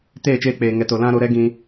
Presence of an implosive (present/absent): absent